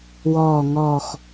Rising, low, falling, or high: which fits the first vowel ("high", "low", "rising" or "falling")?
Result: falling